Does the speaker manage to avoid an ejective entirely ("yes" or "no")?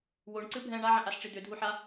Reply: yes